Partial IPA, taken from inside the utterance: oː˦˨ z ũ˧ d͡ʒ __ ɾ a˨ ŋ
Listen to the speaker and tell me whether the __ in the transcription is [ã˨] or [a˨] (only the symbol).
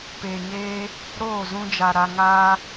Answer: a˨